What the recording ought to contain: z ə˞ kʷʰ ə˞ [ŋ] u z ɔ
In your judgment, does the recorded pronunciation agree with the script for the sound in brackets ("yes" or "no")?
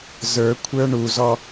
no